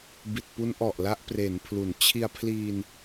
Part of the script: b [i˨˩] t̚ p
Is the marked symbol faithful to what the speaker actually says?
yes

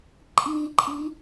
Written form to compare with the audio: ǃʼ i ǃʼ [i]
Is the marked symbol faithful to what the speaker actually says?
yes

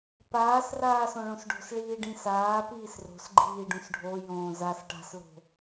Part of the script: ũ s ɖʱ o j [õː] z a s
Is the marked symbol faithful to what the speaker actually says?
yes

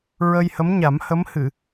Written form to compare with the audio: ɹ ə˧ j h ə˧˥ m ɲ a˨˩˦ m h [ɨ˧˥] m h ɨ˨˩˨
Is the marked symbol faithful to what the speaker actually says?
no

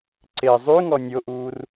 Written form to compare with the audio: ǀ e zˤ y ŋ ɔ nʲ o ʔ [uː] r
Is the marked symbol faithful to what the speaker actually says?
yes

